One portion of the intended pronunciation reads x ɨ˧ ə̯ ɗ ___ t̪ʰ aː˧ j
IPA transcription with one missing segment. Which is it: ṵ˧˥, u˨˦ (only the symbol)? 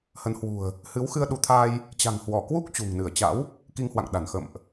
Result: u˨˦